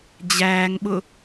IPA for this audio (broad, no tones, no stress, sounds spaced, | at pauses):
d͡ʑ æː ŋ ɓ ʊ